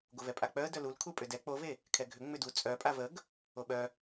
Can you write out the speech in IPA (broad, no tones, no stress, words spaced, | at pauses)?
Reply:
ɡovɛpʼak͡pœə̯ dœlul kʰupʼʏdɛ k͡pove | kʰɛɡʱʏ ŋ͡mʏdu t͡sʼœ pʼavəɡ | oɓœ